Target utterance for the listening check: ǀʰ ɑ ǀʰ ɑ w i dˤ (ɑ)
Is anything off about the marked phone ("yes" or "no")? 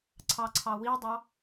no